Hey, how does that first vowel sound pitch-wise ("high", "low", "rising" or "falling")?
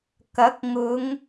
rising